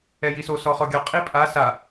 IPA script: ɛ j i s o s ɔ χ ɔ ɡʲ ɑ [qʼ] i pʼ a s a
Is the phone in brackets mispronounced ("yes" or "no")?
no